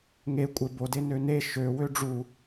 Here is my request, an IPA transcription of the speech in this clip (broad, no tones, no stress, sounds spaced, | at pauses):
ŋ e kʷʼ e b o d e n ø n e ʃ ø w ø ɖ͡ʐ u